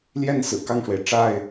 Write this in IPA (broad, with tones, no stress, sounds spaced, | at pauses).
l j ɛ˥˨ n s ɹ̩˨˩ k ɑ˥˨ ŋ ʂ w e˩ ɪ̯ ʈ͡ʂ a˥˨ ɪ̯